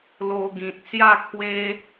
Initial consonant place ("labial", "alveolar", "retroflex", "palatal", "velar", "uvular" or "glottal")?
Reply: alveolar